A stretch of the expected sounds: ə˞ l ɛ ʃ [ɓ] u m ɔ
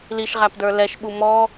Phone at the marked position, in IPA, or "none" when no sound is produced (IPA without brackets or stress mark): ɓ